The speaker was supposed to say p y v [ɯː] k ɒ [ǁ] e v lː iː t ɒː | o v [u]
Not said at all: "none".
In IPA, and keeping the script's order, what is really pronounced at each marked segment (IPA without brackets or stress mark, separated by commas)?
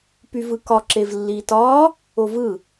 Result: ɯ, ǁ, ɯ